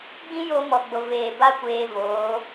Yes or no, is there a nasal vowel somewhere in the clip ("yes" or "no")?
yes